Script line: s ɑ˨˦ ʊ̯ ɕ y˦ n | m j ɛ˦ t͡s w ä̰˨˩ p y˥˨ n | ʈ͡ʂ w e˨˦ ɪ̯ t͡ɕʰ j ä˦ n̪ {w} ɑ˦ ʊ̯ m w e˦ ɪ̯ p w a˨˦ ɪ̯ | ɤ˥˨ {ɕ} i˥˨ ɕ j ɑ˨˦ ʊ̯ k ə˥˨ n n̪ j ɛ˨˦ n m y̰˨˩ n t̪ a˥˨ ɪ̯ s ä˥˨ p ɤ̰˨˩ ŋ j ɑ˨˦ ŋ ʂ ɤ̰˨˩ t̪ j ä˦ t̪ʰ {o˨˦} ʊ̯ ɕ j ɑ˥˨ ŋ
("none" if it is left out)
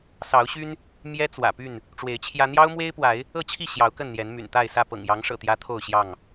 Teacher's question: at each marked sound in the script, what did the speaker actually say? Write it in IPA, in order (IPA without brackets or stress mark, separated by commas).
j, t͡ɕʰ, o˥˨